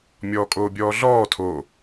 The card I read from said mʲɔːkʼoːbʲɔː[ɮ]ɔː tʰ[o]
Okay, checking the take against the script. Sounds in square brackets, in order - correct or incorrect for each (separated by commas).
correct, correct